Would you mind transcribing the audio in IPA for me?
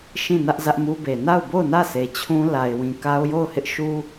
ʃ ĩ˦˨ n ä˦ ʔ z ä˦ ʔ m u˦ b e˨ n a˦˨ ʊ̯ b o˦˨ ʊ̯ n ä˦˨ sʰ e˨ t͡ɕʰ ũ˦ l a˨ ɪ̯ w ĩ˨ k a˦ ʊ̯ j o˦˨ ʊ̯ h ɪ˦ ʔ ʃ u˦

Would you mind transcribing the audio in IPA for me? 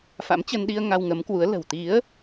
f a̰˧˥ m t͡ɕ ə˧ n ɗ i˧ ə̯ ŋ a˧ w ŋ ə˨˦ m k w u˨˦ ə̯ l ə̤˨˩ w t̪ i˨˦ ə̯

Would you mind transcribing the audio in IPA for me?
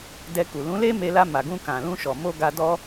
d ɛ˧ k u˨ l ũ˨˦ l e˦ m e˧ l a˧ m a˨ ɡ ũ˧ k ã˨ l ũ˧ ʃ ɔ˨ m o˧ ɡ a˧ d ɔ˦

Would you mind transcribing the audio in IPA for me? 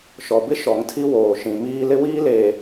ʃ ɔ˨ b ɪ˦ ʃ ɔ˨˦ ŋ tʰ i˦ w oː˨ ʃ ĩ˨ m iː˦ l ɪ˦ w iː˦ l eː˨

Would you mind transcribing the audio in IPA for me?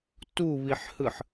t u β i ħ h ɯ ħ

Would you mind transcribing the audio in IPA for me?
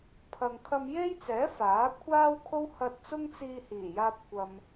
pʰ ɐ˨ ŋ kʰ ɐ˧ m j e˥ j t͡s ɛː˨˥ f aː˨˥ kʷʰ aː˥ w kʰ o˥ w h ɐ˧ t̚ t͡s ʊ˥ ŋ t͡s iː˧ h iː˨˩ j aː˧ p̚ kʷ ɐ˨ m

